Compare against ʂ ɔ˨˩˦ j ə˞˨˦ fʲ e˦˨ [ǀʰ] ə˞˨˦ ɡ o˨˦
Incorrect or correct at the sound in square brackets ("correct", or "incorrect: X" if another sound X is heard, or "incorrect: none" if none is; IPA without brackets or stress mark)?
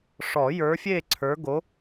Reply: correct